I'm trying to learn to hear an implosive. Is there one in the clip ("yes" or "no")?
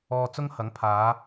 no